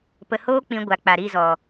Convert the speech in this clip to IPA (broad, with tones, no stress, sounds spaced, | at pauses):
p ə˧ h oː˦ k͡p ĩ˧ ɡʷ a˨ k͡p a˨ ɾ i˦˨ z ɔ˨